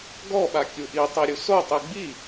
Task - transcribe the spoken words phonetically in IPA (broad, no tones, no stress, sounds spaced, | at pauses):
ɡ ɔ ɓ a kʲ u ʔ i tˤ i ɾʲ u s o tˤ i ɡ͡b i